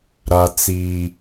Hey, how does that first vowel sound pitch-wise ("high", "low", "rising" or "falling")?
low